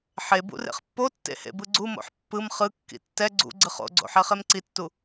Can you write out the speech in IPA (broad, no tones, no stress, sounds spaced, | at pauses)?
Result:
ħ e b ṵ r ḛ χ pː o tː ḛ h ḛ b ɯ ɡ͡ǀ u m o̰ ħ pː ɯ m χ ɯ kː ḭ tː ɛ ɡ͡ǀ ṵ ɡ͡ǀ ɯ χ o̰ ɡ͡ǀ o̰ ħ ɛ χ e m ǀ i tː u